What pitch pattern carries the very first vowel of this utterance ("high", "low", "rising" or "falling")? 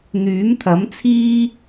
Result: rising